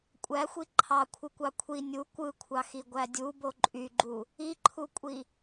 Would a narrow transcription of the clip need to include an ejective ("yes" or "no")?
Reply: yes